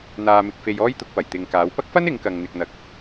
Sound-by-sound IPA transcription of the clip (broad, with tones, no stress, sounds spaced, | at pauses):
n̪ aː˨ m ɪ˨ k̚ f e˨ j ɔː˥ j t̪ ʊ˧ k̚ p ɐ˨˩ j t̪ ɪ˨ ŋ k aː˨˧ w p ɐ˥ k̚ f ɐ˥ n ɪ˨˧ ŋ k ɐ˨ ŋ n̪ ɪ˨ k̚ n̪ ɐ˨˥ k̚